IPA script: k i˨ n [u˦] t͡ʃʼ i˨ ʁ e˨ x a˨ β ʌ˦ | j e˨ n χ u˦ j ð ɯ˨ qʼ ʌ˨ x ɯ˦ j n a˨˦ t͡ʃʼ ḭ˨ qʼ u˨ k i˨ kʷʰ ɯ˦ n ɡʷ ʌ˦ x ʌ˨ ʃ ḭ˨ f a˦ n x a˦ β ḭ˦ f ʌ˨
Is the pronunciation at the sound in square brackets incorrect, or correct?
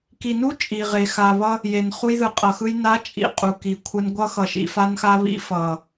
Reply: correct